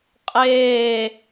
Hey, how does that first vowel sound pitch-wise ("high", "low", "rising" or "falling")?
falling